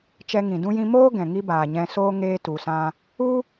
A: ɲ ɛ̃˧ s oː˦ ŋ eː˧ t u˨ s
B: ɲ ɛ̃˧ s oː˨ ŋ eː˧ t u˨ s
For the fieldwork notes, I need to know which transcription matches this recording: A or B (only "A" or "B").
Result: A